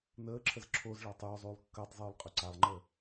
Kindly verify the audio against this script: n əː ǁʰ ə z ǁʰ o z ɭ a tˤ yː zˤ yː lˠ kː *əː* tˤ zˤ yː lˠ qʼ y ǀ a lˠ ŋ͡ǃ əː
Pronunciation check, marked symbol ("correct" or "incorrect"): correct